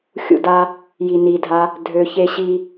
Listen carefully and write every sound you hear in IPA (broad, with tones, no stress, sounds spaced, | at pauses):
xʲ ṵ˧ d a˧ | j i˨ n i˨ dʱ a˧ | dʱ ø˧ ç e˦ ɕ i˦